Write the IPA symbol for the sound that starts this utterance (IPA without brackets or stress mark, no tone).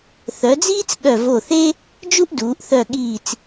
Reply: θ